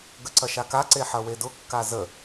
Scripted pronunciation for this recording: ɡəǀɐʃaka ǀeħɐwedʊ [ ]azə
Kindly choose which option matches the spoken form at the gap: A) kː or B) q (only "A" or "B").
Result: A